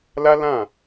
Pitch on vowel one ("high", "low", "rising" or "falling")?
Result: high